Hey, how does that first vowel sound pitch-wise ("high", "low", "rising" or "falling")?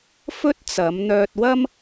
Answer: high